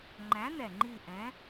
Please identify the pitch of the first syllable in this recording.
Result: rising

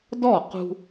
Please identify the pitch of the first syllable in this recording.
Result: falling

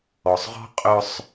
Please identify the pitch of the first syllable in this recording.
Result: low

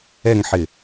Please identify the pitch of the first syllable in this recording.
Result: falling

